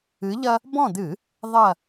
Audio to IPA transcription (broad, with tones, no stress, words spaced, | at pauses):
ɨ˨˦ʎɐ˦ | bɔ̃˦˨d̪ɨ˧˩˧ | ðˤɐ˦˨